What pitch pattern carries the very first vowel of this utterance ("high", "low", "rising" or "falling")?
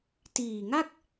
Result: low